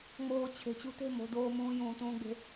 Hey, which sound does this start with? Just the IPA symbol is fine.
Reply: ŋ͡m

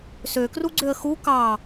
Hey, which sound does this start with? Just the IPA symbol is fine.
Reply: s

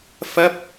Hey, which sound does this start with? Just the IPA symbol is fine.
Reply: f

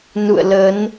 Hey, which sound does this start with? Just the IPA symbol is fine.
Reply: n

